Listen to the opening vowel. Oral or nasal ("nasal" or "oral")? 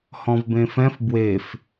nasal